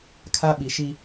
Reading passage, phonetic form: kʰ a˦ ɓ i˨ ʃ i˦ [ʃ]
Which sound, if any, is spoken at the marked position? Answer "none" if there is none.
none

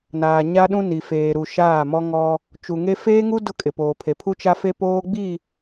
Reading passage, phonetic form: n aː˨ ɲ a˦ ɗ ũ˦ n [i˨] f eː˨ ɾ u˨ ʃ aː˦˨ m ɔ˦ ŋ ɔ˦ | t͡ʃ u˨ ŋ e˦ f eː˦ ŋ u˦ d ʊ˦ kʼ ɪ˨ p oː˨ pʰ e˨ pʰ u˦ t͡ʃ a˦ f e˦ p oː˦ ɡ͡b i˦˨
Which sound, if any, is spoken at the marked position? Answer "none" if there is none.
i˨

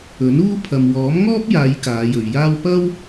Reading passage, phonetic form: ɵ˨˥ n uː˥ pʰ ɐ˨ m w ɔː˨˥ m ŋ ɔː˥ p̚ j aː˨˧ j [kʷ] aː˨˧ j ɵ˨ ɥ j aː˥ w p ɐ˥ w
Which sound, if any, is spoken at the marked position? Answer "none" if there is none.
k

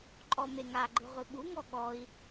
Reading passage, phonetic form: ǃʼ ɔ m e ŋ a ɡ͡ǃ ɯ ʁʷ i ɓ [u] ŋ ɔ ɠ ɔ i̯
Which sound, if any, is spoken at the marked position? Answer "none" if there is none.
u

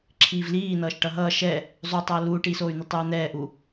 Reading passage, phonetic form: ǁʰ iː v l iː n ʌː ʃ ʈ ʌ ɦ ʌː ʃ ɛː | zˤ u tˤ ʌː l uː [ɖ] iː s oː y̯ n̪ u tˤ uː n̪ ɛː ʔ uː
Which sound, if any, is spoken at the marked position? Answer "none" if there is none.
ʈ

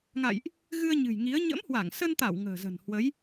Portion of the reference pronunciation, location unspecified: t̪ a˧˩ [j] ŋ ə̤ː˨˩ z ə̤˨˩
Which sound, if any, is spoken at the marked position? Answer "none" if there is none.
w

